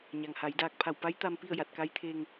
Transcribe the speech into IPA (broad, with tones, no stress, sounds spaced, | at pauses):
ɲ a˩ ŋ h a˩˧ j d aː˧ k̚ pʰ a˧˩ w p a˧˥ j t̪ a˧ m p i˥˨ ə̯ j a˧˩ t̚ k a˧˥ j t̪ʰ eː˧ ŋ